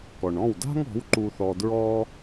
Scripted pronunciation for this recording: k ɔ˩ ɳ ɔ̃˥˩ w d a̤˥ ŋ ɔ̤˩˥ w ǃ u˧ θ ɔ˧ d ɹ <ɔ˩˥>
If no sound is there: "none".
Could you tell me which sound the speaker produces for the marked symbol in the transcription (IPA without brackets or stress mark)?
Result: ɔ˥